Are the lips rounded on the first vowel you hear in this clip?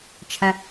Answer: no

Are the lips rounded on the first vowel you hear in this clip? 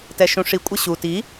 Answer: no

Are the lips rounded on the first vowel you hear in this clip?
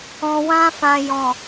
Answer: yes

